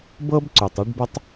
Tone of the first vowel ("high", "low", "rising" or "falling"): high